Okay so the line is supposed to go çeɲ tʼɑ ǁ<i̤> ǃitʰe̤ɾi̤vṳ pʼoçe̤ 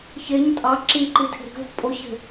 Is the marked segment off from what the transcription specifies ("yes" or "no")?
yes